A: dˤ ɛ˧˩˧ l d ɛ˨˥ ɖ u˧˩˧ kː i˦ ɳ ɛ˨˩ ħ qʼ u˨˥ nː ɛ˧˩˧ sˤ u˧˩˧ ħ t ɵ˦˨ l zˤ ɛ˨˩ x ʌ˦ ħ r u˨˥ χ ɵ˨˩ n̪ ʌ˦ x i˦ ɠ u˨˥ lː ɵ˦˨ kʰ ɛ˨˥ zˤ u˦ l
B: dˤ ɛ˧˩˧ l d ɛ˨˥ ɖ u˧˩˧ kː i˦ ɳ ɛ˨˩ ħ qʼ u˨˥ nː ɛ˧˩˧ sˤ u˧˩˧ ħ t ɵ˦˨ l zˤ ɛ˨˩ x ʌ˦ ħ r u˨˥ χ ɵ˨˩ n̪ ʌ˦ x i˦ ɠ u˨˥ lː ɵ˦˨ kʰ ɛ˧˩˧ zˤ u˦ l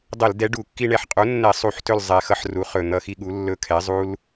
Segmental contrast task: A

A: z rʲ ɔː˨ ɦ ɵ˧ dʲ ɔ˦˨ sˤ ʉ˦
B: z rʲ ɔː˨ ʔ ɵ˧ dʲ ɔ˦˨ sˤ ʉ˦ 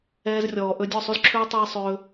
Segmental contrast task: B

